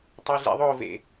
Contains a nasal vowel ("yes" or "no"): no